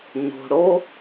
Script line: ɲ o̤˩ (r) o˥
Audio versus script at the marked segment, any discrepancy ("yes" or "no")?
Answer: yes